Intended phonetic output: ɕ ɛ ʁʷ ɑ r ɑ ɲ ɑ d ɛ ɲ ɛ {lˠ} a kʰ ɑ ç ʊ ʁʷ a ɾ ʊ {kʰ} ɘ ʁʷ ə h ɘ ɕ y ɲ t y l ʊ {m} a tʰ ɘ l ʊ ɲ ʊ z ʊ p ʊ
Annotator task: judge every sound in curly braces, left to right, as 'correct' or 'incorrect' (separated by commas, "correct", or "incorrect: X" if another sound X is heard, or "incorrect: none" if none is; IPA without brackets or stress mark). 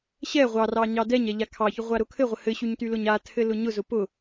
incorrect: ʎ, correct, incorrect: ɲ